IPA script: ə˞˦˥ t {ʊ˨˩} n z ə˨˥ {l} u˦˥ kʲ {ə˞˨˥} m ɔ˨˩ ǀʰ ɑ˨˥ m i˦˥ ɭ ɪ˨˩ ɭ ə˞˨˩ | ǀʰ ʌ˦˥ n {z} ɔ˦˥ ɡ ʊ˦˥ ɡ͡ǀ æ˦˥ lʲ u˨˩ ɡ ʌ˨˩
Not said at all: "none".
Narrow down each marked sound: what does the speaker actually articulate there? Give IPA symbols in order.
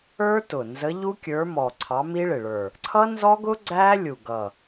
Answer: ʊ˨˩, ʎ, ə˞˨˥, z

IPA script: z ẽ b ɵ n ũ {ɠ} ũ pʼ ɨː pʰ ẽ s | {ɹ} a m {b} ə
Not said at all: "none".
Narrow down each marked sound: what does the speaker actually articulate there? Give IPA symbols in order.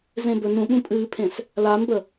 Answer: ɠ, l, b

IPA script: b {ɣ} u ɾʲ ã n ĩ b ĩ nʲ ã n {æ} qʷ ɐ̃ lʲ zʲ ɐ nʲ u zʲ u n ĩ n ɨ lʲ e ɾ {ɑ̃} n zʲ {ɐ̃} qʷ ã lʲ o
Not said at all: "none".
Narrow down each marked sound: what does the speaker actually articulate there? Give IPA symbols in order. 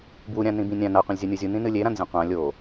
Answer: w, a, ã, ɐ̃

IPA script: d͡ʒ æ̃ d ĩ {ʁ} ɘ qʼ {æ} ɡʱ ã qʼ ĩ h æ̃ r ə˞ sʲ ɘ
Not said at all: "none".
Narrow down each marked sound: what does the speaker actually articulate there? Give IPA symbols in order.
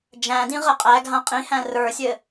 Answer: ʁ, æ

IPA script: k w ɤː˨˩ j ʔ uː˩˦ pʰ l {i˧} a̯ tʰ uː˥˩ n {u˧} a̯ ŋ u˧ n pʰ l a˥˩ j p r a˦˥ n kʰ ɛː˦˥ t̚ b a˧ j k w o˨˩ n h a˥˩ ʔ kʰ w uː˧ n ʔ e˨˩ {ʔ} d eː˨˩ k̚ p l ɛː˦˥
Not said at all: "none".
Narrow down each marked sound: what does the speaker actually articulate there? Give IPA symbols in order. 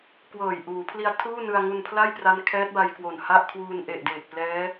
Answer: i˧, ɯ˧, ʔ

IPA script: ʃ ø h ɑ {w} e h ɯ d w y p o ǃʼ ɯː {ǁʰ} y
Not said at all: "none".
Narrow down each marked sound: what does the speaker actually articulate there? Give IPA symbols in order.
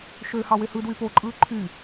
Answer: w, ǃʰ

